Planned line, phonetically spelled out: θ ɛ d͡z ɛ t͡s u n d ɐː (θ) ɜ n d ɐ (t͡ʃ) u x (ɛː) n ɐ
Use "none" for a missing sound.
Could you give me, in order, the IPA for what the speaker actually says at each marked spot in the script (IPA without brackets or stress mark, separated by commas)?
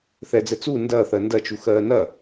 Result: θ, t͡ʃ, ɜː